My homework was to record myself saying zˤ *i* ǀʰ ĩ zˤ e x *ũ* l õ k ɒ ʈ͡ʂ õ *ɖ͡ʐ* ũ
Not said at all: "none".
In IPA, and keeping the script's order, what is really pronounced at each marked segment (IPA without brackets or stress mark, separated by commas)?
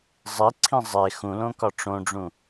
i, ũ, ɖ͡ʐ